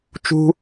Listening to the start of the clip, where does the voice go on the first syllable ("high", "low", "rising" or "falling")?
high